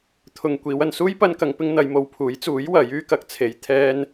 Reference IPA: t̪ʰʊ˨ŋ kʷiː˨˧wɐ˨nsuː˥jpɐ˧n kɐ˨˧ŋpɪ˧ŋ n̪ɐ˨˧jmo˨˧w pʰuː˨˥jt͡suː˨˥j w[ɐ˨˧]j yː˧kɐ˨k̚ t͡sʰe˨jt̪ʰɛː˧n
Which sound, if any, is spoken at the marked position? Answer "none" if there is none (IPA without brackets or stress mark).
ɐ˨˥